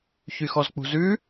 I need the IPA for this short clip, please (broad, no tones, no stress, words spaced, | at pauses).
çyxɔzk͡pṳzʉ